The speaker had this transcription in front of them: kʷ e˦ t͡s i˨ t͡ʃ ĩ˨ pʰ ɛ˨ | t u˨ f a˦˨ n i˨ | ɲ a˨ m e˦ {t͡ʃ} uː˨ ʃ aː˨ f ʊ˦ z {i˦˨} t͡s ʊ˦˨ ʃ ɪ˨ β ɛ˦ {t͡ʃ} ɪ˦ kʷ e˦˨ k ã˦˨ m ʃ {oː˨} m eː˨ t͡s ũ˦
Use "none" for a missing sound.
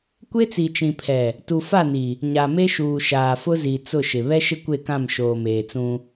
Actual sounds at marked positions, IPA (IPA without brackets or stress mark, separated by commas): ʃ, i˨, ʃ, oː˨